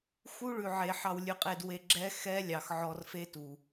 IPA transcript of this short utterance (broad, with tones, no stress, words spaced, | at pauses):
xu˦ɭʉ˨ʕe˨ ħɑ˧wlʲʉ˧qʼe˧dwe˧ ɡ͡ǁɛ˦ xɛ˦lʲɑ˨x ʕɔ˧rfe˦tu˨